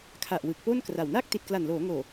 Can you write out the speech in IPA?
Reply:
kʰ a˨˩ ʔ w ɯ˨˩ k̚ p o˥˩ n k r a˨˩ w n a˥˩ k̚ t i˨˩ t̚ k l a˨˩ n l oː˩˦ ŋ oː˨˩

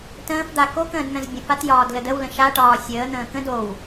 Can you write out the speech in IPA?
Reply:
t ə̃ː f d̪ a k o k ə̃ː d n̪ ə̃ z bʲ ə̃ f a t j ɒː d l ə d ə w l ə̃ ʃ a ʈ ɒː sʲ əː n̪ ə̃ː k ə̃ d o w

